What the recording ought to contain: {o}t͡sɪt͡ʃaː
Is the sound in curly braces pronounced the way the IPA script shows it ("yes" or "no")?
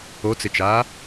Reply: yes